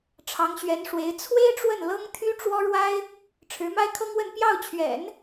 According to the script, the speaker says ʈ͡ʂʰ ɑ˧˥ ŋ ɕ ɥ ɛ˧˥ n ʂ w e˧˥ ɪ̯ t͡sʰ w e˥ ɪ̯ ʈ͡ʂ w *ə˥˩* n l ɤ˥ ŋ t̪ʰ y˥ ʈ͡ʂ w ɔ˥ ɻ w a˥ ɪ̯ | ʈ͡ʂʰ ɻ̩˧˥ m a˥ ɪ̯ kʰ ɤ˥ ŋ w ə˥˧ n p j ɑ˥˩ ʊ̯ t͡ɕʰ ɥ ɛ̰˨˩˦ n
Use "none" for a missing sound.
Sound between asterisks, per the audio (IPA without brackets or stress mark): ə˥˩